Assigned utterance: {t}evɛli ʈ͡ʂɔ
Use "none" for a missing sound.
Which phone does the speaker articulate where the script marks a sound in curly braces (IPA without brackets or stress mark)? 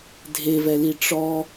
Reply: dʱ